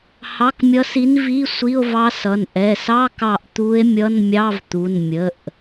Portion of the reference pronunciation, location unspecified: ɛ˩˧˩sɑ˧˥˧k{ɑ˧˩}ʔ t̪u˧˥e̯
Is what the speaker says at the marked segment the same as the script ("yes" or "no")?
yes